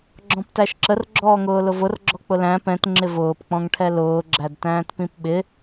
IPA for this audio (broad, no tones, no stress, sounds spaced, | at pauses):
ɡ͡ǁ ɔ̃ p t æ ʃ ǁ ə r ɡ͡ǁ ɔː ŋ ʊː l ʊ v ʊ r ɡ͡ǁ ɔ k͡p ʊ l æ̃ p ɛ̃ t ŋ͡ǁ ɪ v ʊː p k͡p ɔ̃ ŋ ʈʰ ɛ l ʊː ɡ͡ǁ æ d t æ̃ː t p ĩ p ɓ ɪ